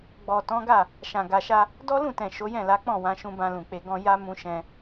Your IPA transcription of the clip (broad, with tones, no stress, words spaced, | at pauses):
ɡ͡bɔ˨tɔ̃˨˦ɡa˦˨ | ʃã˨ ɡa˨ʃa˧ | dɔ˦lũ˦˨tɛ̃˨ ʃo˨˦jɛ̃˦˨la˨˦k͡pɔ̃˦˨ wã˨˦ʃũ˧bã˧lũ˨ k͡pe˨ɡɔ̃˧ ja˦mũ˧ ʃɛ̃˧